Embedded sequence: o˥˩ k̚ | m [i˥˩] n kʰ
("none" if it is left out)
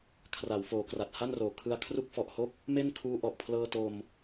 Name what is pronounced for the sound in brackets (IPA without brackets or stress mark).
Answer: e˥˩